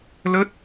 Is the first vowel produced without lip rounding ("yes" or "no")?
yes